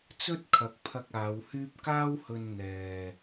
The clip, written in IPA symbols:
t͡sɵ˥t̚kʰɐ˨˥k̚pʰɐ˧k̚ aː˨˧whyː˥p̚ kaː˥whɵ˧n n̪ɛː˨

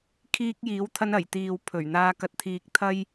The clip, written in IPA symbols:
kʰiː˧k̚jiː˨˥wt̪ʰɐ˧n ɐ˨˩jt̪iː˨w pʰɵ˨˩ɥ n̪aː˧ kɐ˨t̚t̪ʰiː˨k̚ t̪ʰɐ˥j

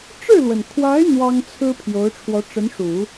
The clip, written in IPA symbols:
ʈ͡ʂɻ̩˥˩lwə˩nkʰwa˧˥ɪ̯ n̪wɑ˥ŋt͡sʰɹ̩˥ pʰjo˧˥ʊ̯ʈ͡ʂʰwɔ˧˥ʈ͡ʂə˧˥nʂu˨˩˦

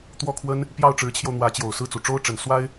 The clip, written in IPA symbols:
t̪wɔ˥kʰwə˥n | pjɑ˥˩ʊ̯ʈ͡ʂɻ̩˧˥t͡ɕʰjo˧ʊ̯ n̪wä˧˥t͡ɕjo˨˩ʊ̯sɹ̩˥˩ t͡su˨˩ ʈ͡ʂo˥ʊ̯ʈ͡ʂə˨˩n swa˥ɪ̯

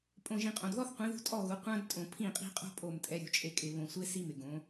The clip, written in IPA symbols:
pʼõ˨ʒĩ˨qʼõ˨dðɔ˦θ qʷĩ˨˦ðṳ˦ tʼɔ˦˨ɣu˨˦ qʷã˦d tʼõ˨pʰĩ˦˨qʼi̤˦qʼo̤˦ pʼo˦˨mtʼɛ˦ɾʲṳ˨˦t͡ʃʼe˦ kʼɪ˨βõ˨sʷe˦ si˦ mɪ˨ɡõ˨˦

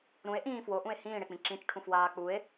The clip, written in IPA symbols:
ɾũe̯ʔĩː fwoʔũe̯ hĩːɽek͡pĩ ǁĩt͡ʃʈʰũfwaː k͡pue̯

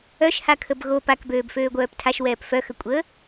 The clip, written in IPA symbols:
œʃhakʰəb ɣo pakbøːbføːɡʷœːp tʰaʃwɛːp fœxəkʷʼəː

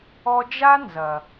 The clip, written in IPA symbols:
ɔ˧d͡ʒa˦ nzɐ˨

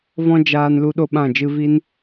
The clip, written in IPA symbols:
vɔ̃˦d͡ʒaː˧n lu˦ɗo˦ɓã˦˨ d͡ʒɨ˧vi˦n

